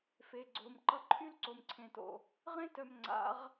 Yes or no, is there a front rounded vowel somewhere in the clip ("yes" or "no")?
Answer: yes